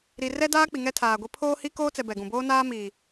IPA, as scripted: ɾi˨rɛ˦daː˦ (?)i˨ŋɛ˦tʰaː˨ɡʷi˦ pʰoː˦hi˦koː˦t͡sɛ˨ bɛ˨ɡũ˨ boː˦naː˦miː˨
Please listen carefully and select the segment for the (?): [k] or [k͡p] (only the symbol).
k͡p